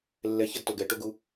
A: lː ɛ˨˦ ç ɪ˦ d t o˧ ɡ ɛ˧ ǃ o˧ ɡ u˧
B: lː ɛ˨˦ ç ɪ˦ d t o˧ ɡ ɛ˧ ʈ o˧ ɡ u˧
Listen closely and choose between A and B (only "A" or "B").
B